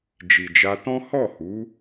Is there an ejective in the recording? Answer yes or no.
no